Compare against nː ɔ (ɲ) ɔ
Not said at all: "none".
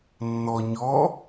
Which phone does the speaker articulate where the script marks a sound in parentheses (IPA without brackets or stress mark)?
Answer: ɲ